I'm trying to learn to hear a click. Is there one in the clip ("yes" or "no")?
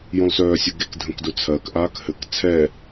no